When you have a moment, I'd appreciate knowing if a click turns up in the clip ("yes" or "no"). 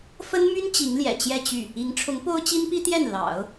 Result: no